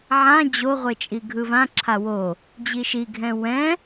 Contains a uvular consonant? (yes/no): yes